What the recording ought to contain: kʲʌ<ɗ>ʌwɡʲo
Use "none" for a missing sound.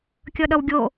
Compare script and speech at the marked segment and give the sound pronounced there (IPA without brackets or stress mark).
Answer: ɗ